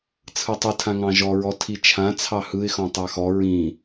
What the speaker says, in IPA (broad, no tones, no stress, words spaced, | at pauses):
t͡sʰɯtˤɯ tʰãŋɑ̃ʒɔ ɹɔtʰit͡ʃʰã t͡sʰɑhɯɪ̯ xɔ̃tˤɑxɔ ɹĩ